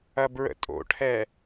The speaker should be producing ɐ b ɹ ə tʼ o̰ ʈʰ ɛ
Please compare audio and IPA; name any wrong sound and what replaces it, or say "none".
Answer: ə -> ə̰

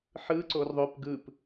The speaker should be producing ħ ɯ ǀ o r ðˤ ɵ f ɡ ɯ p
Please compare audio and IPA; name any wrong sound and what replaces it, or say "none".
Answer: f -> p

